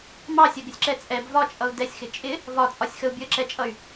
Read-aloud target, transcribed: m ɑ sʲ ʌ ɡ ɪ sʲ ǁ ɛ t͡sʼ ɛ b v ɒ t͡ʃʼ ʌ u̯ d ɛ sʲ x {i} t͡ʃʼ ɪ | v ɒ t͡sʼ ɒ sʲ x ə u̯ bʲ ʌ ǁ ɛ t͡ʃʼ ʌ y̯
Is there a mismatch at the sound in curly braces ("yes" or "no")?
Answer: yes